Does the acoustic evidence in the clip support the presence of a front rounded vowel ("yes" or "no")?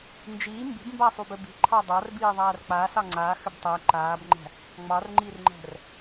yes